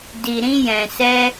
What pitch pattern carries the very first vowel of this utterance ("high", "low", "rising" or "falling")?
low